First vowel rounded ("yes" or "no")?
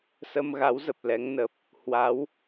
no